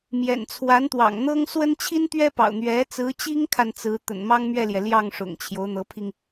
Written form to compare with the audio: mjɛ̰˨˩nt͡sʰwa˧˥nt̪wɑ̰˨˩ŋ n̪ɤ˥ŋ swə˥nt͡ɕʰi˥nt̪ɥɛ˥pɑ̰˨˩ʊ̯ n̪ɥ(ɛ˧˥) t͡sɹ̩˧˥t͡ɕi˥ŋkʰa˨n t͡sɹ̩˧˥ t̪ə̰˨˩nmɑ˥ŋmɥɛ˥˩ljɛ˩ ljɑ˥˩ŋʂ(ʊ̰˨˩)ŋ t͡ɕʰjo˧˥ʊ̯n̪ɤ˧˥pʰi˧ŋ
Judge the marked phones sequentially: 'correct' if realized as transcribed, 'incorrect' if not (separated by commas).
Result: correct, correct